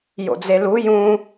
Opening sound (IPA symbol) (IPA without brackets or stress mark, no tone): j